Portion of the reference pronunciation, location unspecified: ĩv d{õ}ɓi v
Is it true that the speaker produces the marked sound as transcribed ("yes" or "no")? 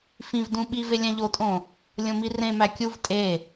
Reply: no